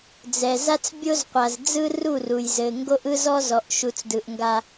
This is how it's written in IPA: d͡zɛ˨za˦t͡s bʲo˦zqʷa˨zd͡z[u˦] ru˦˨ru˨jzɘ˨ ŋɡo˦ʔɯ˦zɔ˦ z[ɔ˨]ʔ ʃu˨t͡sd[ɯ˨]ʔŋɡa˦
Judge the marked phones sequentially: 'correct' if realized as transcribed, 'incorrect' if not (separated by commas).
incorrect, correct, correct